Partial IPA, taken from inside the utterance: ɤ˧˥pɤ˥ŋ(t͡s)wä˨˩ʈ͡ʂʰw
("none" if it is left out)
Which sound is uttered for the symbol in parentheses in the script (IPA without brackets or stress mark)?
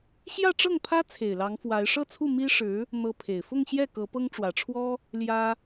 ʈ͡ʂ